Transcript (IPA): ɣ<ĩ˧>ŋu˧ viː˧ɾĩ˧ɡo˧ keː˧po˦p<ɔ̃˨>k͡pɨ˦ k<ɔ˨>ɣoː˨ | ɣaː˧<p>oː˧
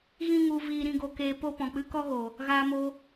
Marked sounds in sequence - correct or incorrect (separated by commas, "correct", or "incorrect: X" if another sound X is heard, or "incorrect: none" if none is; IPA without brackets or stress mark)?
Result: incorrect: ĩ˦, correct, incorrect: ɔ˦, incorrect: m